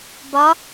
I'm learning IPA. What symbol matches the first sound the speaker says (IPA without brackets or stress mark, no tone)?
b